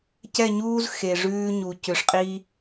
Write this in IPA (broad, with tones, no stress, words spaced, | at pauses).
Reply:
cɛ˦˨ɲuː˦z xe˨ʐʉː˦ɲu˨ cʏ˨ʂqʼi˦